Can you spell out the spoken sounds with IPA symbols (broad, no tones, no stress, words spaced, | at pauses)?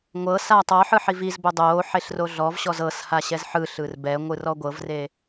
ŋʷɤ saːtˤɔħɯ ħivizbo dˤoː ħeɬroɮɔvɕɔz ɤsha ɕɛzħɯɬɯr bɛŋʷɯr ɔɡʷɤvre